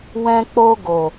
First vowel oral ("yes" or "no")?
no